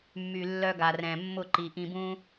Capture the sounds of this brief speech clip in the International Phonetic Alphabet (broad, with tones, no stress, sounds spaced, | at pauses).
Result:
mː y˨ lː œ˧ ɡ a˨ r ɛ̃˨ mː ʊ˦˨ ǃ i˨ ʔ ĩ˧ b ũ˦